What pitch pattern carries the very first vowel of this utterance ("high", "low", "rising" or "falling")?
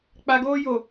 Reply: low